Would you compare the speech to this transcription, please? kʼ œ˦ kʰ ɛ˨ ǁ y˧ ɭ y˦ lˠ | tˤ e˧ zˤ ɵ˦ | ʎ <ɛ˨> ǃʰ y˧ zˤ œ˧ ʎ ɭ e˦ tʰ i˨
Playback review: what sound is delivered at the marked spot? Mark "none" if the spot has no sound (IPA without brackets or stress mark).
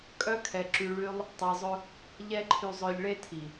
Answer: ɛ˦